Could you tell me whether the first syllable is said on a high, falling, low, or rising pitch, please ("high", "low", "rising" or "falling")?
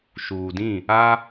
low